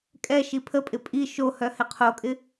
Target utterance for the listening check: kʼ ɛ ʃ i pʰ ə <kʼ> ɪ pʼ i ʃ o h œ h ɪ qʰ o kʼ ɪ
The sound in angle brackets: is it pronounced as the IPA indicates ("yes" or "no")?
no